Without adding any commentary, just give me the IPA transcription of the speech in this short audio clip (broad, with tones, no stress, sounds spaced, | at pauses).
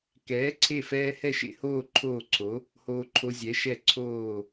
k ɛː˨˥ ǀʰ e˦˨ f ɛː˦ h ɛ˦˨ ʃ ḛ˦˨ h oː˦˨ ǃʰ oː˦˨ ǀʰ o˨˥ | h oː˦ ǃʰ o˦ zʲ ɛ˨˥ ʃ ɛ˦˨ ǀʰ oː˦˨